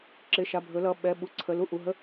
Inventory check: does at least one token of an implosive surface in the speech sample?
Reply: yes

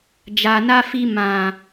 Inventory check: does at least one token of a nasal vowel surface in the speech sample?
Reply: yes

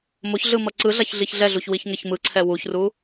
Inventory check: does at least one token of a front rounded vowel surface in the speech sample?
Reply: no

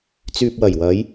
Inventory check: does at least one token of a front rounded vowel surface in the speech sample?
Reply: yes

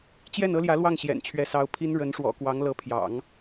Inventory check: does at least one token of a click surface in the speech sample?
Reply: no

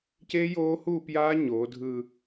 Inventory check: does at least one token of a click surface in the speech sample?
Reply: no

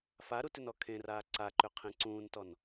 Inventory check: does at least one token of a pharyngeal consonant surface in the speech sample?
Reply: no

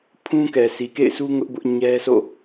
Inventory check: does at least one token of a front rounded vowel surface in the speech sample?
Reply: no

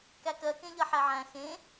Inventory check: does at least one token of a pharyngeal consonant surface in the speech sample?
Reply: yes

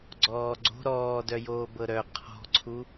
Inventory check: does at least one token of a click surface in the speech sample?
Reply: yes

